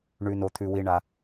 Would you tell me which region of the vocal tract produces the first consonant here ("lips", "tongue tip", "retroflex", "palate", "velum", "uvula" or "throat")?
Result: retroflex